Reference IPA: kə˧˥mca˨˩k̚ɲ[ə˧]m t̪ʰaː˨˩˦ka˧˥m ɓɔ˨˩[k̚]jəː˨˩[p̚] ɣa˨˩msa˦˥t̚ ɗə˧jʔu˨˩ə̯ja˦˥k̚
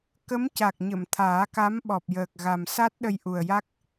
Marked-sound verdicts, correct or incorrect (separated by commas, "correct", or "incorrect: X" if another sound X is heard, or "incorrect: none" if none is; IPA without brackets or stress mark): incorrect: ə˨˩˨, incorrect: p̚, incorrect: k̚